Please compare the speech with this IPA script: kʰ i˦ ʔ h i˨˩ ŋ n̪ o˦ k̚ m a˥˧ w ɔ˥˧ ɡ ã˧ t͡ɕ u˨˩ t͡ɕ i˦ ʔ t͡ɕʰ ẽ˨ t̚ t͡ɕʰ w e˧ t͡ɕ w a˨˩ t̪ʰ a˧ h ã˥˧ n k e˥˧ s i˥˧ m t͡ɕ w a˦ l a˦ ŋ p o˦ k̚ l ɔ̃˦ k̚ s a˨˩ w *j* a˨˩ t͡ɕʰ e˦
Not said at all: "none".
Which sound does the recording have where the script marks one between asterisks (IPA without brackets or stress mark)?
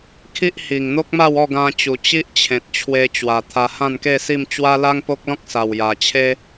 j